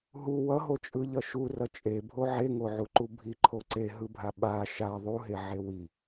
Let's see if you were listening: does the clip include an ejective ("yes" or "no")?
yes